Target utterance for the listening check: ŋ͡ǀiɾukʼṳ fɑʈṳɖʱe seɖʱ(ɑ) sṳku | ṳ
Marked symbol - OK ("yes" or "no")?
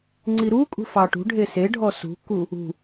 no